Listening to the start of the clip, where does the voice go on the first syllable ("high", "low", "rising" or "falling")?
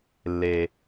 low